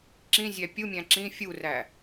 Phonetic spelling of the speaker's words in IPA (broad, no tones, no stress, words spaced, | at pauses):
ǁĩzʲæ pʲumʲæ̃ ǁĩ fʲuræ